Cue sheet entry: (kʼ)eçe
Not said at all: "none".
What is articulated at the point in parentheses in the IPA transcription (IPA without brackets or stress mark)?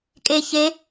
kʼ